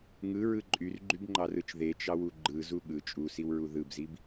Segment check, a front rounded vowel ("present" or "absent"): present